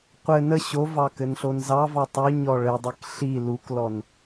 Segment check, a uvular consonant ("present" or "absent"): present